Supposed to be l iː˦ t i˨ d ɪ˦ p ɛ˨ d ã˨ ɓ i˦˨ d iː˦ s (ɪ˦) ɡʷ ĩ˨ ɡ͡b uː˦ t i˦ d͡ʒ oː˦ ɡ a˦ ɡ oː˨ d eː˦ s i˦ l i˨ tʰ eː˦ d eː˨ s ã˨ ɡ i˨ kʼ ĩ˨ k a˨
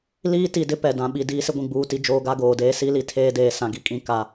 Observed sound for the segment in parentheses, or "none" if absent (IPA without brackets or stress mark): ɪ˦